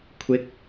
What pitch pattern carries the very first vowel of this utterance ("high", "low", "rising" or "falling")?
rising